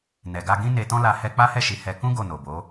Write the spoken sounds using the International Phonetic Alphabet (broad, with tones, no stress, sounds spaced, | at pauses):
n ɛ˨ ɡ a˧ ɡ ĩ˦ n e˧ t ɔ̃˦ l a˧ h ɛ˧ k͡p a˦ h ɛ˦˨ ʃ i˨˦ h ɛ˧ k ũ˦ ɡ o˦˨ n o˨ b o˨˦